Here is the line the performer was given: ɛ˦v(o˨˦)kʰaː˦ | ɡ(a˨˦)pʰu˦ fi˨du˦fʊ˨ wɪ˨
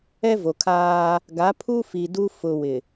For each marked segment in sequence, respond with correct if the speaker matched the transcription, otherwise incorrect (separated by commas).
incorrect, correct